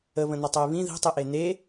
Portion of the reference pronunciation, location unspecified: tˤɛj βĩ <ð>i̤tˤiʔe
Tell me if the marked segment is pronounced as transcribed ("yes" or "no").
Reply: yes